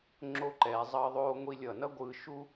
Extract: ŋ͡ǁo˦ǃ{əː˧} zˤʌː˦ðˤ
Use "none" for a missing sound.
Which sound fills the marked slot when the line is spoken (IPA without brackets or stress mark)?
ɛː˧